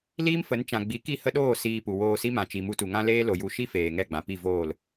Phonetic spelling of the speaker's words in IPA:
l iː˦ m f ə˨˦ n t͡ʃ ã˨ ɡ͡b i˨˦ k i˦˨ h ə˦ ɗ oː˦˨ s iː˧ p u˨ w oː˧ s i˦ m ã˨ t͡ʃ i˨ m u˧ t u˨ ŋ ã˦ l eː˦ l o˨ j u˧ ʃ i˦ f eː˨ ŋ ɛ˦˨ ɡ͡b ã˨ p i˦˨ v oː˦˨ l

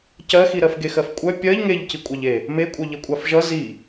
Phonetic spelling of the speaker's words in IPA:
c ɜ x i ɾ ɜ f ɡ e x ɜ f kʷʼ œ pʲ ɜ ʎ ŋ e ʎ c i kʷʼ ɑ ʎ e | m e kʷʼ œ ʎ ʌ kʷʼ ɑ f ʒ ʌ z i

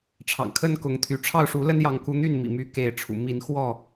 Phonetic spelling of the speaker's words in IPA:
ʈ͡ʂʰ ɑ̰˨˩ ŋ kʰ ə˦ n k ʊ˨˦ ŋ t̪ʰ y˨˦ ʈ͡ʂʰ ɑ˥˨ ʊ̯ ʂ u˨˦ l ə˦ n j ɑ˨˦ ŋ k u˨˦ n̪ y˥˨ n m ḭ˨˩ m y˨˦ k e˨˦ ɪ̯ ʈ͡ʂʰ ṵ˨˩ m i˨˦ n x w ɔ˥˨

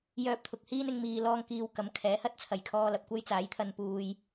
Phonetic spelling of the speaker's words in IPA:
j œː˧ p̚ t̪ʰ ʊ˨ k̚ h iː˥ n ɪ˨˧ ŋ m iː˧ l ɔː˥ ŋ k iː˧ w k ɐ˨˧ m kʰ ɛː˨˥ h ɐ˥ t̚ t͡sʰ ɐ˨˩ j kʰ ɔː˧ l ɐ˨ p̚ kʷ ɐ˥ j t͡s aː˨˥ j t̪ʰ ɐ˧ n p uː˨ j

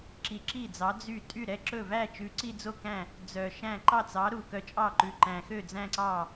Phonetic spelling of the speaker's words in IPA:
ǁ i˨˥ ǁ i˥˩ d͡z ɑ˨˥ d͡z y˥˩ tʼ y˥˩ ɾ ɛ˥˩ ǁ ɵ˥˩ v æ˥˧ t͡ʃ ʉ˨˥ ǀ i˥˧ d͡z o˥˩ k æ̃˥˩ | d͡z œ˨˩ ʃ æ̃˥˩ ǃ ɑ˥˩ t͡s ɑ˨˥ ɾ u˨˩ k œ˨˥ t͡ʃʼ ɑ˥˩ ǃ ʉ˨˩ ǃ æ̃˨˩ x ø˥˩ d͡z æ̃˥˧ ǀ ɑ˥˩

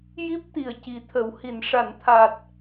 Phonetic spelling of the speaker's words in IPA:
j i˦˥ p̚ t̪ i˨˩ ə̯ c i˨˩ t̪ʰ ə˨˩˨ w h i˨˩˨ n ʂ a˨˩˨ n t̪ʰ a˨˩ t̚

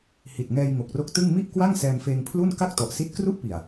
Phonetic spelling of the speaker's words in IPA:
h i˨˩ t̚ ŋ ɛː˧ j ŋ o˨˩ k̚ r o˦˥ k̚ t ɯ˥˩ ŋ m i˥˩ ʔ k w a˥˩ ŋ s ɛː˧ m f eː˧ ŋ pʰ l u˥˩ n k a˥˩ k̚ t ɔ˨˩ ʔ s i˦˥ t̚ k r u˥˩ ʔ p i˨˩ a̯

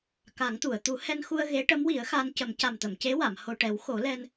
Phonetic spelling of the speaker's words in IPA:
k a˨˩˦ ŋ t̪ u˨˩˨ ə̯ t̪ u˨˩˦ h ɛ˧ n x u˧ ə̯ ɣ e˧˥ ʈ ə˧˥ m w i˨˩˦ ə̯ x a˧ n c ə˨˩˦ m c a˨˩ m t̪ ə˨˩˨ m c e˧˥ w a˨˩˨ m h o˨˩ ʈ ɛ˨˩˦ w x o˨˩˦ l ɛ˧ n

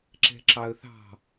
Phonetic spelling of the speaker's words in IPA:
ǁ ɛ̤ ǁ ɑ ə̯ θ ɑ̤

